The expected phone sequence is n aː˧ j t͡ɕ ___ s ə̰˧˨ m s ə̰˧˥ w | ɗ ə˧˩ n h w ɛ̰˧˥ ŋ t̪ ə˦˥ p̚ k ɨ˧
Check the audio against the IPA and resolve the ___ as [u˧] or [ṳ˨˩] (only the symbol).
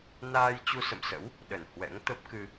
u˧